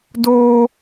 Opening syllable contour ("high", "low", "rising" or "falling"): high